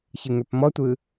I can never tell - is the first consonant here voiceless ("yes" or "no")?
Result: yes